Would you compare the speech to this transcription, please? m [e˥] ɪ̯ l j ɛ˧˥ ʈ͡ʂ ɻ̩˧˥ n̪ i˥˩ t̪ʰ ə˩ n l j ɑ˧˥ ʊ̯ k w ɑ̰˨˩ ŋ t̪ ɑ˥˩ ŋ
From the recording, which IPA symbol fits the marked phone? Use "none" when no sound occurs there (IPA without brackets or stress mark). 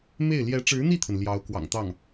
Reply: e˥˩